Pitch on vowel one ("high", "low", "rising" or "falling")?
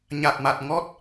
low